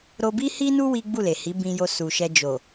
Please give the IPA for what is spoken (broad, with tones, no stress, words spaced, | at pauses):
ɾo˧bi˦hi˦nu˦ wi˦ɡ͡bu˦˨le˨hi˨˦ bĩ˧jo˧ su˨ʃɛ˧ d͡ʒo˨